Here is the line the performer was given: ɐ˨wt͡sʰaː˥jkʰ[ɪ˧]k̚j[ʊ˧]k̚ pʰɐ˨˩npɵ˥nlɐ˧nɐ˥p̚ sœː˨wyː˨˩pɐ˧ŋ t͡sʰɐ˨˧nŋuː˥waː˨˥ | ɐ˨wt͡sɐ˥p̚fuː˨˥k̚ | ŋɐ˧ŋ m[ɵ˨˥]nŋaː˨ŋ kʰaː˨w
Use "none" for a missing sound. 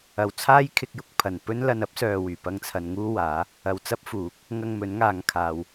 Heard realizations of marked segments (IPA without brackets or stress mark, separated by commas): ɪ˧, ʊ˧, ɵ˨˥